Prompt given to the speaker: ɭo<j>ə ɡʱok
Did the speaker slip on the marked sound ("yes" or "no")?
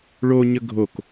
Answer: yes